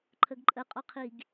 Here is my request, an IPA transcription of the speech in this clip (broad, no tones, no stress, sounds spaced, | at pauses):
ǃʰ ə ɡ ǃʼ ə qʼ ɔ qʰ i ɡ